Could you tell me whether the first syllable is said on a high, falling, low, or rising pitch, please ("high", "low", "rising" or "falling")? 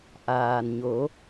low